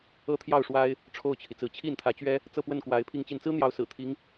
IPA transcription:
ɤ˥ t̪ʰ j ɑ˥˩ ʊ̯ ʂ w a˥ ɪ̯ | ʈ͡ʂʰ o˥˩ ʊ̯ t͡ɕʰ i˩ t͡s ɹ̩˧˥ t͡ɕʰ i˥˩ n t̪ʰ ä˧˥ t͡ɕ ɥ ɛ˥ | t͡s ɤ˥˧ p w ə˥˩ n k w a˧˥ ɪ̯ pʰ i˥˧ ŋ t͡ɕ i˥˩ n t͡s ɹ̩˥ n̪ j ɑ˧˥ ʊ̯ s ɹ̩˨˩ t̪ʰ i˧˥ ŋ

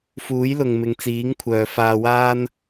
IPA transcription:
f uː˨˥ j l ʊ˨ ŋ m ɪ˨ ŋ t͡s iː˨˥ ŋ kʷʰ œː˨ f aː˧ w aː˥ n

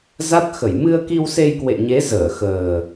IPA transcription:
z a˦˥ t̚ x ə˧˩ j m ɨ˧ ə̯ k i˧ w s e˧ j k w ḛ˧˨ ɲ e˨˦ z əː˧˩ x əː˨˩

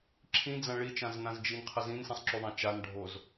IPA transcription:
ǁʰ ĩ d͡z ã ɭ i t͡ʃ ã z n ã z d͡ʒ i n qʰ ə z ĩ n s ĩ sˤ ǁ u ðˤ ã t͡ʃ a n ɖʱ o z

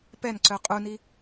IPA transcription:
p ɛ n ǀ œ qʼ u n i

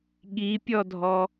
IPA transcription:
ɠ i pʲ ɔ dʱ ɔ

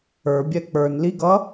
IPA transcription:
ə˞ bʲ ɛ k͡p ə˞ n l i ɡ ʌ

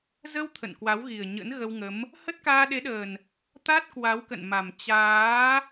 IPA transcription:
z ə˧ w t̪ʰ ə̰˧˨ n k w a˨˦ w ɣ i˨˩ ə̯ ɲ ə̰˧˥ n ɣ ə˧ w ŋ ə˨˦ m | h ə˦˥ t̚ k aː˧ ɗ e˨˦ ɗ əː˨˩ n | t̪ a˦˥ t̚ k w a˨˦ w k ə̰˧˨ n m a˨˩ m t͡ɕ aː˨˦

